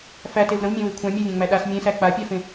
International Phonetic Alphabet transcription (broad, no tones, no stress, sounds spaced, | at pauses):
f æ t e v ɾ ə̃ v mʲ ẽ w e kʷʰ ã mʲ a vʲ ã ŋ͡m æ ɗ a s mʲ ẽ s æ k͡p a pʲ a f ẽ